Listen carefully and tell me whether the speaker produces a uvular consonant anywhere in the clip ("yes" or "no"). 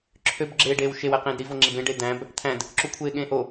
yes